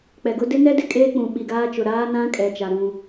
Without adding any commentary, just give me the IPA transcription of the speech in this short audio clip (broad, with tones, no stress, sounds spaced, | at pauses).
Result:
k͡p ɛ˨ ɡ ʊ˦ d ɪ˦ n ɛ˦ d ɪ˨ kʼ eː˦ k͡p ũ˨ ɓ i˨ ɡ aː˦ t͡ʃ ʊ˨ ɾ aː˦ n ã˦ kʼ ɛ˨ t͡ʃ a˨ ɾ ũ˦